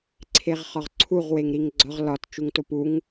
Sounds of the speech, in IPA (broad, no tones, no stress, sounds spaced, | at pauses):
ǀʰ e ʁ χ ɒ ʁ ǀʰ u ʁ w e ŋ ɾ i ŋ ɡ͡ǀ ɒ ʁ l ɒ t t͡ʃ u ŋ t o p u ŋ